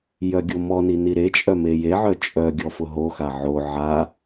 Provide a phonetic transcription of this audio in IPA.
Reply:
jœɡʲomɔni niɾet͡ʃʼœme jeʕœ t͡ʃʼœɡʲɔfʊ ɦoxa ʕo ʕa

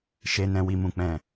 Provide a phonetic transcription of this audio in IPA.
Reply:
ʃe˨nɛ̃˨ wi˨mũ˨k͡pɛ̃˨

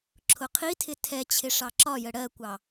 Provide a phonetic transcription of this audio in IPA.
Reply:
ǁʰʊqʰitʰɪ tʰɛt͡ɕʰɪ ʂɑǁɒjə ɽɜkʷɑ

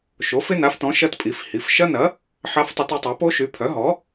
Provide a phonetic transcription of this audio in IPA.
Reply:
ʃo˩˥fɪ˦˥na˩˥ftɔ̃˩˥ ʃɐ˦˥tpʼi˩˥fhi˩˥f ʃɐ˦˥nɐ˩˥ | ħa˦˥ftˤɐ˦˥tʏ˦˥ tˤa˩˥po˦˥ʃy˩˥ pʰœ˩˥ɦɔ˩˥

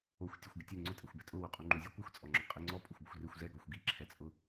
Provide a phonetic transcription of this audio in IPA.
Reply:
oxʷ tʲoxʷɡɪtʲɛ ŋ͡ǀʊtʼɛxʷbɛ tʼʊ wuqʼuŋ͡ǃuzʲɔ kʷɪxʷt͡sʼɔŋ͡ǁɔ qʼiŋ͡ǀɔ pʼʊxʷbʊxʷrɪxʷ zɛɡɔxʷ ɡiǁʰɛt͡sʼʊ

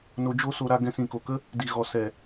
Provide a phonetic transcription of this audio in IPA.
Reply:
no˧ d͡ʒo˦so˧ɾa˧ ɡɛ̃˧sĩ˨ko˨kə˦ | di˨ɣɔ˨ sɛ˨

